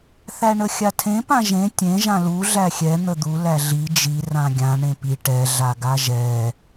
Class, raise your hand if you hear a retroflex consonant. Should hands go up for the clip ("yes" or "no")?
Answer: yes